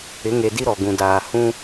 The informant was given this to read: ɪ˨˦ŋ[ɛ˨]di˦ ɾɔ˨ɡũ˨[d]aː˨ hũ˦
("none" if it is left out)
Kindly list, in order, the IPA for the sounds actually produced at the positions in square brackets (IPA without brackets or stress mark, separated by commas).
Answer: e˨, d